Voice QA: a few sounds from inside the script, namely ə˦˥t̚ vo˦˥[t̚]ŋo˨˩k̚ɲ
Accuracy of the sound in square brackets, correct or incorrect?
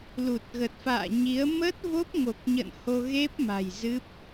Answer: incorrect